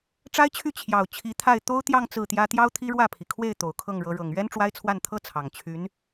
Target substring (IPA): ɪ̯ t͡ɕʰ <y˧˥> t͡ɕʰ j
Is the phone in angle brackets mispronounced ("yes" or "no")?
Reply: yes